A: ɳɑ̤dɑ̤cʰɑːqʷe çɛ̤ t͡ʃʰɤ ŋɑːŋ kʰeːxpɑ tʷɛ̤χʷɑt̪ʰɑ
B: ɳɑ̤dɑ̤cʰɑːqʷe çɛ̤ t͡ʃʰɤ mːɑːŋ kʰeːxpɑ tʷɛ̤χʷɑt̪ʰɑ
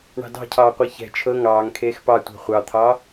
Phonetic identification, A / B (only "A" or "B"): A